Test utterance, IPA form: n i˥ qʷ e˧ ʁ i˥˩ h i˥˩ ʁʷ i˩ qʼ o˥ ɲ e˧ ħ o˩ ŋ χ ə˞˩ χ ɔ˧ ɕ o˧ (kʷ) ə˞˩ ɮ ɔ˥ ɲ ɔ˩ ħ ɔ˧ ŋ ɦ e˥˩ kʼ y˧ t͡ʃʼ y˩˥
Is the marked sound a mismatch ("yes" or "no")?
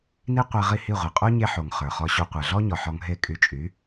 yes